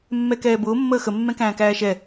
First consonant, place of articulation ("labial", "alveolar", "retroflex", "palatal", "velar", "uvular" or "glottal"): labial